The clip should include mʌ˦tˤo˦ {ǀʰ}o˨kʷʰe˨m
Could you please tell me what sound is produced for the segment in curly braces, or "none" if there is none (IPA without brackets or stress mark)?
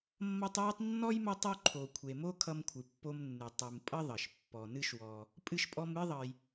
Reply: ǃʰ